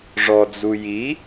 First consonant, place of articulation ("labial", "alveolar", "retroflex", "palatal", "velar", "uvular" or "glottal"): retroflex